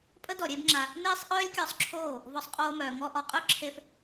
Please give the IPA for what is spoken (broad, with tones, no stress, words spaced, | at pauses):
pʼə˦dɔ˨ ɾʲe˦bŋ͡ǁa˧ | neː˦sˤʔœː˦lʲkʲɔ˧sˤǁʰoː˦˨ | vɔ˧sˤqʼoː˧mœː˨ ŋɔ˧ʔɔ˨qʼœ˦ ǁʰe˦f